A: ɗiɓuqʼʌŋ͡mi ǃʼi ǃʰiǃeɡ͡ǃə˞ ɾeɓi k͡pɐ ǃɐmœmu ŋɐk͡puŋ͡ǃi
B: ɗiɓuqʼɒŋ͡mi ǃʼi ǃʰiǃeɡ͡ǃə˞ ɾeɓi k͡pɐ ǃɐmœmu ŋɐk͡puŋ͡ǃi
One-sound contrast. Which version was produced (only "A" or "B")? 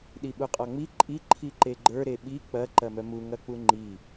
B